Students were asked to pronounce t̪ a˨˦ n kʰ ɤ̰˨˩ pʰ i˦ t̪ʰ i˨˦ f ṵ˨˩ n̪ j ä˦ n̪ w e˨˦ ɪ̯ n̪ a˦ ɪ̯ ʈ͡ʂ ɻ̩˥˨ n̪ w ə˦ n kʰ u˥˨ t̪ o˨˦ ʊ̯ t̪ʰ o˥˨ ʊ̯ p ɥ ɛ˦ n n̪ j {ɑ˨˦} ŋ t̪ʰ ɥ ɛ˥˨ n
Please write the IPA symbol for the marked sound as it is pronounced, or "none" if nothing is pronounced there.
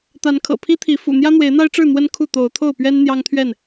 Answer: ɑ˦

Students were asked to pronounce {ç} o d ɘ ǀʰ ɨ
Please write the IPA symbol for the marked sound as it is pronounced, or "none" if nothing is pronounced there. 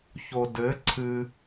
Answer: ç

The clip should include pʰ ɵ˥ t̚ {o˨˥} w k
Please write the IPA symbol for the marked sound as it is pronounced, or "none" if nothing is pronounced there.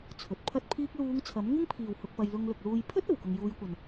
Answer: o˨˩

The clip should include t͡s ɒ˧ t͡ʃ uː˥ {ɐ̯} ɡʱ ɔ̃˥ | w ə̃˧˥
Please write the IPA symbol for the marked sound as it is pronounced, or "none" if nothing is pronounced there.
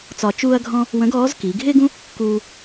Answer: ɐ̯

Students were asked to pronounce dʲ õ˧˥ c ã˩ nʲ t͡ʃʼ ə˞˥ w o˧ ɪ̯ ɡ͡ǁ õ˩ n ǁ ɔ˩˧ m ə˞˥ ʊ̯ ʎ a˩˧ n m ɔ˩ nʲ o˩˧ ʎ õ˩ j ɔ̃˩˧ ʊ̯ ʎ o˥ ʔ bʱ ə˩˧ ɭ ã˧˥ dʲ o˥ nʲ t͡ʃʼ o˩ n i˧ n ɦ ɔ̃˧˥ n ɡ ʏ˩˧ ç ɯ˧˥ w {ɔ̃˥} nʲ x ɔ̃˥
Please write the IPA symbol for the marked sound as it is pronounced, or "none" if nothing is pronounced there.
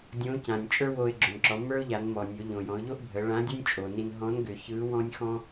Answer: ɔ̃˥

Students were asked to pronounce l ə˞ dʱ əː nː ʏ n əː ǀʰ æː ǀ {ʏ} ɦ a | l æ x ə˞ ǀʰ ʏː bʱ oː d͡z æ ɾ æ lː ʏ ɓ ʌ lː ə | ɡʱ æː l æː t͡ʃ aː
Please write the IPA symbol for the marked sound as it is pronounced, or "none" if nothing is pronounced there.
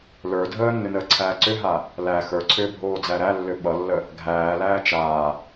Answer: ʏ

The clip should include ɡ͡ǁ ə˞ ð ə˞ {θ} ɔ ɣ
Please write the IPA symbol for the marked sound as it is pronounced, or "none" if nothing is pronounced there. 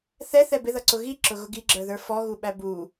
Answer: f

